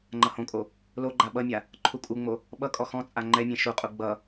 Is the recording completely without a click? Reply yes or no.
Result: no